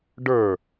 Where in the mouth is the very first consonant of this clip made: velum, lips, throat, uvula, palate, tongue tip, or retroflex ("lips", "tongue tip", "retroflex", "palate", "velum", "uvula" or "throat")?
retroflex